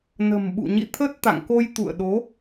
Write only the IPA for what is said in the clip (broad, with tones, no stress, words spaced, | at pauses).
nə̤˨˩mɓṵ˧˨ ɲḭ˧˨t̪ʰə˦˥t̚t̪a̰˧˨ŋko˧j t̪ṵ˧˨ə̯ɗo˨˦